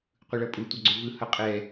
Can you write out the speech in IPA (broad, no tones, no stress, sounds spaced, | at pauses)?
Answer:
qʷ ɯ ɭ ʌ pʼ u tʷ ʌ ɡ͡ǀ o v ɯ h ʌ qʼ ɛ